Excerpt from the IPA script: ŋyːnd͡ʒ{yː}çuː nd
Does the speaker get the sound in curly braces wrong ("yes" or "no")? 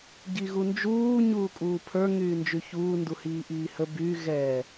yes